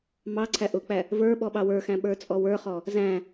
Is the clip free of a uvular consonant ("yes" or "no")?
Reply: no